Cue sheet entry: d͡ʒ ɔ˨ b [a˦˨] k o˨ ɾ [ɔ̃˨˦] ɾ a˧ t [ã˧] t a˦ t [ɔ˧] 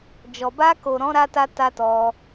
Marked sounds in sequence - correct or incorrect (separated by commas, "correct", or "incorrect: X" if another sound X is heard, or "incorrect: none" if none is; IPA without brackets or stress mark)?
incorrect: a˧, correct, incorrect: a˧, correct